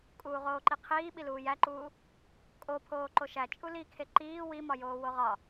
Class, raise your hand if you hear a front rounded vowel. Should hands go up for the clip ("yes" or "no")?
no